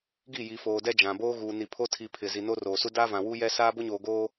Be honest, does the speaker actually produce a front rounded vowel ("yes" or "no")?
no